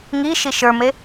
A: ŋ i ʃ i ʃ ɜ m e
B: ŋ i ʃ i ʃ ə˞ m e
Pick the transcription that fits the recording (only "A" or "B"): B